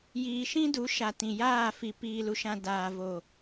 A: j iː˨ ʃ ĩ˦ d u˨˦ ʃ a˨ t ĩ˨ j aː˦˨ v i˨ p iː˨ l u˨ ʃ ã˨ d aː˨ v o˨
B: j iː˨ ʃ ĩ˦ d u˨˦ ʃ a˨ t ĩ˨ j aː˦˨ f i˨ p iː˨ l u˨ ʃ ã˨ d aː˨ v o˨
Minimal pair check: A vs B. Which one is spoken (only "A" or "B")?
B